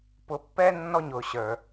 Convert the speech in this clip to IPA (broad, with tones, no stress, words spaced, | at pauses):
pʊ˨˥pːɛ˦ nːɔ˦ɲʊ˨˩˦ɕə˞˨